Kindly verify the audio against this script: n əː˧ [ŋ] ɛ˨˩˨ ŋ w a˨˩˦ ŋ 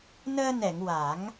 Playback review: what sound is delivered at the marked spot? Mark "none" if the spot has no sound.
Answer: n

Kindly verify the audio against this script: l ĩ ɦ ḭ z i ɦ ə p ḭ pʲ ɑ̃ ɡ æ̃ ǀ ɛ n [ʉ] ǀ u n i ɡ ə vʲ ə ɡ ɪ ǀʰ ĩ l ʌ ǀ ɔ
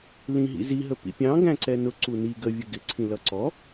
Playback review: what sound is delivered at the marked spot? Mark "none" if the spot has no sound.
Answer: ʊ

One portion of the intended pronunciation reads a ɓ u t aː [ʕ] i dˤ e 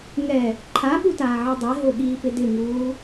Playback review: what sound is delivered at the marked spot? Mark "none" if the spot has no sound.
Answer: ʕ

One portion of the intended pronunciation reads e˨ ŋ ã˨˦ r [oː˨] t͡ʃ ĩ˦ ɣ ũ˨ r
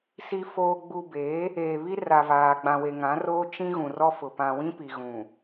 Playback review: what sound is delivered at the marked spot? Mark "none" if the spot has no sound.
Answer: oː˦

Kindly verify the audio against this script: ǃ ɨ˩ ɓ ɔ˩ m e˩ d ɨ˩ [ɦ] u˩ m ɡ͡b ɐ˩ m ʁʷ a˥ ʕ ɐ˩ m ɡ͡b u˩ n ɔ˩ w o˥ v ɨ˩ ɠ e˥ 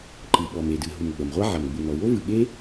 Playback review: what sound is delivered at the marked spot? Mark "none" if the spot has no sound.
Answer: ɦ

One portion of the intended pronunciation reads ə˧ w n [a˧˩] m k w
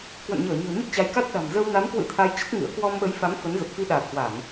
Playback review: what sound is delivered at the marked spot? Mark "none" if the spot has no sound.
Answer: a˨˦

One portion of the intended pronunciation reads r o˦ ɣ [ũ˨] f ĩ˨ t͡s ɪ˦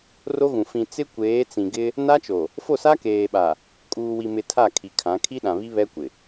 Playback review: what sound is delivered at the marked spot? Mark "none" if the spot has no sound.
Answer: ũ˨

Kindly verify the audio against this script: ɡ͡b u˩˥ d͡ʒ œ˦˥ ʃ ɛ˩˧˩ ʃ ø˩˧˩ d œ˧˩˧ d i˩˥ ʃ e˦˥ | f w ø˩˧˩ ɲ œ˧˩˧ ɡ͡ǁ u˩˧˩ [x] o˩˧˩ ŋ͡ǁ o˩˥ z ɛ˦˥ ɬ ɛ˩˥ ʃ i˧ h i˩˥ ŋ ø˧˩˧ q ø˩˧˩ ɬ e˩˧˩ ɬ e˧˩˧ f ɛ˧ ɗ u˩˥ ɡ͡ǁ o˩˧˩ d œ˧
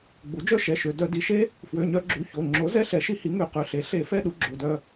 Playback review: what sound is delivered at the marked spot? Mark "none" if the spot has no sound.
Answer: ç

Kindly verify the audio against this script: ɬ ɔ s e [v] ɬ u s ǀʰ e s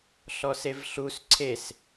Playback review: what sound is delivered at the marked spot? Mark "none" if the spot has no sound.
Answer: v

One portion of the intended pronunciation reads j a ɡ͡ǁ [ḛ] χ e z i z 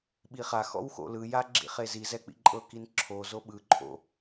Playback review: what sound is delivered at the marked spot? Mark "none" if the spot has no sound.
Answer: ḭ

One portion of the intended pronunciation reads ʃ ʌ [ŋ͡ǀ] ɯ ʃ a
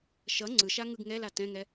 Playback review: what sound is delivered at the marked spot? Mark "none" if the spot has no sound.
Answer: ŋ͡ǀ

